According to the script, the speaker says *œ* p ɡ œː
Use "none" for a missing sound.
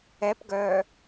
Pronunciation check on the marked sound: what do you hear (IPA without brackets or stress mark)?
ɛ